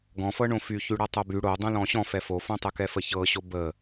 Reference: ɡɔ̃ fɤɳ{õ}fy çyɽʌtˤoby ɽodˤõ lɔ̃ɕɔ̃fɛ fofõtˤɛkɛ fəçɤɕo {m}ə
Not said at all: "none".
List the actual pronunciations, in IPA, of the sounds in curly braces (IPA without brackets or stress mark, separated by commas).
õ, b